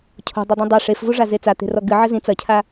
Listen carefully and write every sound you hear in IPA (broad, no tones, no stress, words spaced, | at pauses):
cʰo̤ dˤidˤĩdˤɛ ʂefvuʐa zet͡sat̪e̤rɔ ɡɨ ʕɘzĩ t͡sɐcʰa